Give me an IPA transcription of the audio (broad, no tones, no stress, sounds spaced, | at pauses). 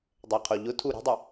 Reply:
dˤ ɛ qʰ o ʎ ʊ tʰ u ɾ i̤ dˤ ɪ